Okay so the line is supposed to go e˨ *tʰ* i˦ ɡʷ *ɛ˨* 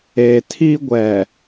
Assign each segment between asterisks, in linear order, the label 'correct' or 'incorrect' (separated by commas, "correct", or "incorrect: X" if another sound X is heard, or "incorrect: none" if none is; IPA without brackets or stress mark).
correct, correct